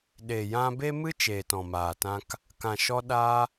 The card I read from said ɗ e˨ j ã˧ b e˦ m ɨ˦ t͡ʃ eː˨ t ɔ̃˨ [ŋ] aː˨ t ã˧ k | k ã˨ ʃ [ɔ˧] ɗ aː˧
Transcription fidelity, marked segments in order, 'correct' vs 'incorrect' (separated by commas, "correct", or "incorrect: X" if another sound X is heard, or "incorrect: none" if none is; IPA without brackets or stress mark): incorrect: m, correct